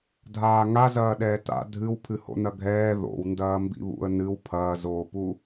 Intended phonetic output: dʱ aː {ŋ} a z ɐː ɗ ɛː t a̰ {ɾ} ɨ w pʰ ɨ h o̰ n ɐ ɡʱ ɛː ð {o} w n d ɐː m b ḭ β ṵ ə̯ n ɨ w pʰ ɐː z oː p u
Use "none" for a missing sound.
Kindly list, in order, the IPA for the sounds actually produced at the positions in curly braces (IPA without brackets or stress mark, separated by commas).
ŋ, dʱ, o̰